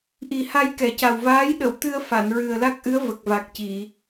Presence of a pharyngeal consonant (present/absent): absent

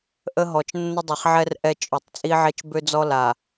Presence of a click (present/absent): absent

